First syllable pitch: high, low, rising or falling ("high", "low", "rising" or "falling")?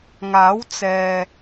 rising